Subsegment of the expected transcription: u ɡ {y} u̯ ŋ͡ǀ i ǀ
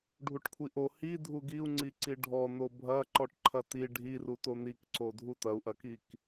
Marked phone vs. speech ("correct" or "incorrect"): incorrect